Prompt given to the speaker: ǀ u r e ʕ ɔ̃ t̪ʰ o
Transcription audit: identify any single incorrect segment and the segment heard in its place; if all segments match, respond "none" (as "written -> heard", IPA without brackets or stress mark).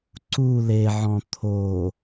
r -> l